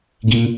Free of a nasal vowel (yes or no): no